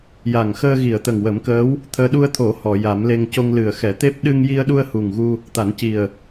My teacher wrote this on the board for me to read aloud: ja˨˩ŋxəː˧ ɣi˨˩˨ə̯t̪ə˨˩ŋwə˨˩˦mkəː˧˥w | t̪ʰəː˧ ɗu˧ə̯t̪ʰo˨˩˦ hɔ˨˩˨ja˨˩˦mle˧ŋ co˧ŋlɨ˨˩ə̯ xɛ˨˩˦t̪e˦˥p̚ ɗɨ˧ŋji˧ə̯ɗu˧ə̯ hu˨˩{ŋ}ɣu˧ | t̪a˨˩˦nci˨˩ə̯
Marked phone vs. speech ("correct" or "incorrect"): correct